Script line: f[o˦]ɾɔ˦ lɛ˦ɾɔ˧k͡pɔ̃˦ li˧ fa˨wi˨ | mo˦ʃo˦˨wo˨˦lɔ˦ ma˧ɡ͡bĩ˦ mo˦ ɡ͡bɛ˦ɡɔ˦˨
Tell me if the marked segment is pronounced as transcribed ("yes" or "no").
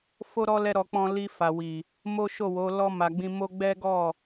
yes